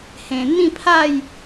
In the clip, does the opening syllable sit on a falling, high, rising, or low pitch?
low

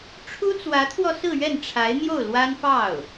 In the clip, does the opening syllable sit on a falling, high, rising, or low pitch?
high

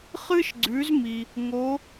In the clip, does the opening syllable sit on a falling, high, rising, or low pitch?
high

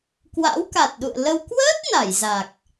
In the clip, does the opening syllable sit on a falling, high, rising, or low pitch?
rising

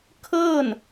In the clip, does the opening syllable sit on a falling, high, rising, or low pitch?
falling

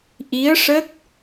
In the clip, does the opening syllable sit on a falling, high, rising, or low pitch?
rising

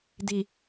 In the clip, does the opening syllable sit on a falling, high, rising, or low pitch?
low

